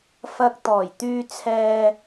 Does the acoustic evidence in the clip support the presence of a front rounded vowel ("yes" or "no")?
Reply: yes